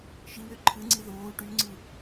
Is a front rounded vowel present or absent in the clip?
present